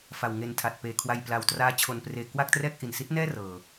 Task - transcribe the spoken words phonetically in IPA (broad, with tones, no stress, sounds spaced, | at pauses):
f a˨˩ w ŋ e˧ n tʰ a˨˩ t̚ p eː˨˩ kʰ w a˧ j p l a˨˩ w t r aː˦˥ t͡ɕʰ o˧ n p r eː˧ k w a˥˩ k̚ t r ɛː˥˩ k̚ ʔ i˨˩ n s i˦˥ t̚ n ɛː˥˩ r ɤː˧